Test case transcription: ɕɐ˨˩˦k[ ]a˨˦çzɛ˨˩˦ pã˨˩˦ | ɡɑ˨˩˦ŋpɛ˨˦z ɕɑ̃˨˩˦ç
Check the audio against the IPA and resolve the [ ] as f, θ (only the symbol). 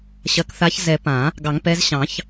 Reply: θ